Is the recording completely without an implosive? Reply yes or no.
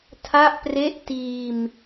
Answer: yes